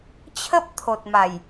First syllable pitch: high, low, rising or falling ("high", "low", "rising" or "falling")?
high